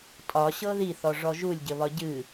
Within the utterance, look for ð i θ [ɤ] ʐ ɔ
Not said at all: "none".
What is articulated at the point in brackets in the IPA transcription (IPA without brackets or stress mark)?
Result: ɔ